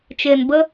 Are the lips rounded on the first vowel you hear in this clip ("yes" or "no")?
no